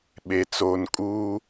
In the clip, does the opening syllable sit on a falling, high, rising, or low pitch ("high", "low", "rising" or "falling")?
low